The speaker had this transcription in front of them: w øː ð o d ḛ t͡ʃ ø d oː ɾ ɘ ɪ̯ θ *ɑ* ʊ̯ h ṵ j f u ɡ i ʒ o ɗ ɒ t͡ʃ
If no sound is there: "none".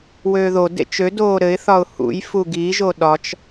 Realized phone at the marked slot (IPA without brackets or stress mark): ɒ